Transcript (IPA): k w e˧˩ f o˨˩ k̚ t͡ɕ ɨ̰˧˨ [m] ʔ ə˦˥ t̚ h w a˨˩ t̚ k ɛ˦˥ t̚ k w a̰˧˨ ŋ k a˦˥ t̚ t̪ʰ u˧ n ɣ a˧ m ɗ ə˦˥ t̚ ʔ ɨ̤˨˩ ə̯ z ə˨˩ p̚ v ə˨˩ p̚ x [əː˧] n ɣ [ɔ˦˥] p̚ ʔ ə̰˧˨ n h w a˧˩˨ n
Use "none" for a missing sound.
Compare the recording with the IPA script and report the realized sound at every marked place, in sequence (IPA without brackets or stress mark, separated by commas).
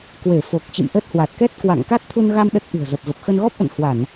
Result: m, ə˧, ɔ˦˥